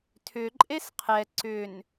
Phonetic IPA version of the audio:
tʰ ʏ ǃʼ e s qʰ ɛ ǀ ʏ n

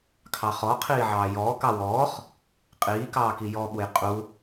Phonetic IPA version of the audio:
kʰ ɑ χ ɔ qʰ iː ʕ ɑː j ɔː k ɑ w ɔː χ | qʼ iː k ɑː k i j ɔ ɓ u j qʼ u

